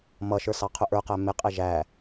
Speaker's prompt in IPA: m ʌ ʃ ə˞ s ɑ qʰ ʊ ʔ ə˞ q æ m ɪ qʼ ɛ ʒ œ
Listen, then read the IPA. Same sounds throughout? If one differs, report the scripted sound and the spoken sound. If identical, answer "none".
œ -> æ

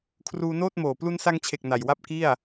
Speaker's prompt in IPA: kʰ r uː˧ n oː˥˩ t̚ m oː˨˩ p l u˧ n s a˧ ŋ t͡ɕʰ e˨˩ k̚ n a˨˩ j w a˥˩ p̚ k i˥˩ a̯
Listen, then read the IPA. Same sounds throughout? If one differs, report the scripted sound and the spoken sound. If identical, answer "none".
none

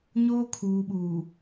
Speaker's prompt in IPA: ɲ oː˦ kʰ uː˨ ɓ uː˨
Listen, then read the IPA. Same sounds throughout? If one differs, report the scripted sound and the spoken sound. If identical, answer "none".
none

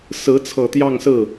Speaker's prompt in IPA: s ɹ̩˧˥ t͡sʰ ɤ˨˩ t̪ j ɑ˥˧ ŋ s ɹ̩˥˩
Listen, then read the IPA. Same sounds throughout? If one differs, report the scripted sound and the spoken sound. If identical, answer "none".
none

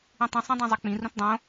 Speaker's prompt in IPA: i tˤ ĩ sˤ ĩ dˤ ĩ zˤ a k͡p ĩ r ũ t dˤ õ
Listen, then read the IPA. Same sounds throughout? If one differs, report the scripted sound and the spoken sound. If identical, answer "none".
i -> ĩ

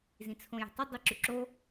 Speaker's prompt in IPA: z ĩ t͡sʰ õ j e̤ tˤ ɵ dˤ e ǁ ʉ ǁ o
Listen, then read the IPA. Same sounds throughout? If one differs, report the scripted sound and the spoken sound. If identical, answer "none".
none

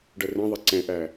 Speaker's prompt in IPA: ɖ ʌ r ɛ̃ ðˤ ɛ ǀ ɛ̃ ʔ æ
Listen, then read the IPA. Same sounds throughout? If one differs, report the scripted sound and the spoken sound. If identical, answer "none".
none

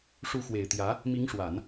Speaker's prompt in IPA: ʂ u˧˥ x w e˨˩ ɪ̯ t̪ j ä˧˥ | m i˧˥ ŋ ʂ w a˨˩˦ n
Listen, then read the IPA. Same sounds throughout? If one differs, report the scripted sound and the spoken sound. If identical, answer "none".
none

